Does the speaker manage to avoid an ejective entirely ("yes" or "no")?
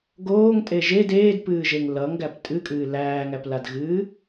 no